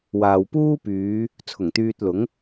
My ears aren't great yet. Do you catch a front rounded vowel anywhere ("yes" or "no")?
yes